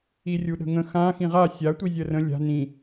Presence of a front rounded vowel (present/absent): absent